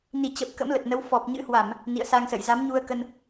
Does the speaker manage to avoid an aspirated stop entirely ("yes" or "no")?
yes